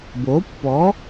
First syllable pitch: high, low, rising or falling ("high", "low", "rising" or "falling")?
rising